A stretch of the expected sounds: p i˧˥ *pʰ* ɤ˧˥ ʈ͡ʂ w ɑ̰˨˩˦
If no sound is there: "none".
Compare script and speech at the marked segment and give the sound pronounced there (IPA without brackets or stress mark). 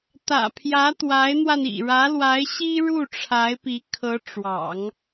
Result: kʰ